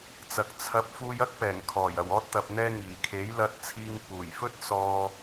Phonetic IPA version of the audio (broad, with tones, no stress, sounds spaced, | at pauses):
t͡s ɐ˨ k̚ t͡sʰ ɐ˨˥ p̚ f uː˧ j ɐ˥ k̚ p ɛː˨˩ ŋ kʰ ɔː˨˩ j ɐ˨˩ w ɔː˧ t̚ t̪ ɐ˨ p̚ n̪ ɛː˧ ŋ iː˨˩ kʰ e˨˥ j l ɐ˧ t̚ t͡sʰ iː˧ ŋ p uː˨˩ j f ɵ˥ t̚ s ɔː˧